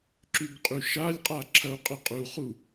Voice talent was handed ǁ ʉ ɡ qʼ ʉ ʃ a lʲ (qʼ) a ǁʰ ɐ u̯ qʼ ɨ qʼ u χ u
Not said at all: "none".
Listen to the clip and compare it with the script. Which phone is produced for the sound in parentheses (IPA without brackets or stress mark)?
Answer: qʼ